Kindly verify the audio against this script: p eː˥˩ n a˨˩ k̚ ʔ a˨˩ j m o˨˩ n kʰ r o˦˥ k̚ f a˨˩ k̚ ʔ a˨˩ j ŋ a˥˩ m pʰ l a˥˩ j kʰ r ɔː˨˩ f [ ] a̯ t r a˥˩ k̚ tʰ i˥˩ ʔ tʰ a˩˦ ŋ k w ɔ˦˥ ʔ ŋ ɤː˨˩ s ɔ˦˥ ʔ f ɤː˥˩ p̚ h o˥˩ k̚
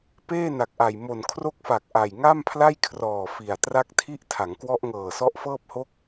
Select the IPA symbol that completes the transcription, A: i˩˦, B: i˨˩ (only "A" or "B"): B